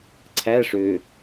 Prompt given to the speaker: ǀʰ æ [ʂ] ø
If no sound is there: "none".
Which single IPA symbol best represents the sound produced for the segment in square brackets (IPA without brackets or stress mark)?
ʂ